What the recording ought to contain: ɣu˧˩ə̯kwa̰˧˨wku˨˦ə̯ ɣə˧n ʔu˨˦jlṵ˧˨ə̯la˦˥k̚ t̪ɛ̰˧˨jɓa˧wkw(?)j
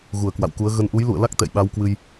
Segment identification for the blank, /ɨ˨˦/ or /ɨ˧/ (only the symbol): ɨ˧